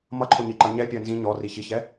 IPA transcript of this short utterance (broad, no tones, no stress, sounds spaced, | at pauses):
m ʌ ǃʰ ʊ ɲ i ǃ ʌ ɲ ɛ pʲ ɜ n z ĩ ɲ ɔ r i ç i ç ɛ